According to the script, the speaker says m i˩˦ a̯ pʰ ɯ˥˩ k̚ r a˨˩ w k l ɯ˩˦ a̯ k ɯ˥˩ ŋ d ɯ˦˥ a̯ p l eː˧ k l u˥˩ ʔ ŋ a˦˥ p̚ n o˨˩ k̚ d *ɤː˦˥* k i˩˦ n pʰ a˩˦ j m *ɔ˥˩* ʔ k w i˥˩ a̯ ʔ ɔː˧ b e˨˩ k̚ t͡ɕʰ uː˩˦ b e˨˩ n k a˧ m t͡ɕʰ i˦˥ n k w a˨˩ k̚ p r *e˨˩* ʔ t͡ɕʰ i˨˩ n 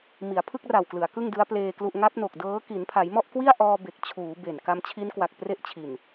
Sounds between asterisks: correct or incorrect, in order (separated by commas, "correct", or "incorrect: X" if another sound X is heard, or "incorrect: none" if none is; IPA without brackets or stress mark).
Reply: correct, correct, incorrect: e˥˩